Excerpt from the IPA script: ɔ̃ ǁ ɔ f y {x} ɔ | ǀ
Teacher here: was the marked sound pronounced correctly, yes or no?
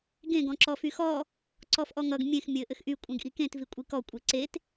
yes